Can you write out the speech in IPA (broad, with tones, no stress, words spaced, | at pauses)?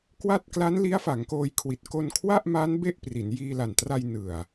kwa˥˩t̚ kla˦˥n li˦˥a̯fa˩˦ŋkoː˧jkʰwi˨˩t̚ ko˧n kʰwa˥˩ʔma˦˥n be˥˩ʔpri˩˦n jiː˧la˨˩ntra˧j nɯ˨˩a̯